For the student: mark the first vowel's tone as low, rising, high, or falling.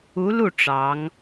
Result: rising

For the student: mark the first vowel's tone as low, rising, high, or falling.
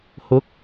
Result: rising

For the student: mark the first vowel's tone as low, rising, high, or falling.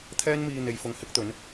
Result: high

